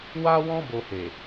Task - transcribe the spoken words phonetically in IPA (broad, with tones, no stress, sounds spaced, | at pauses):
w a˦ w ɔ̃˦ b o˧ h e˨